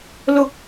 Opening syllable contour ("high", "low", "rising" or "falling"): low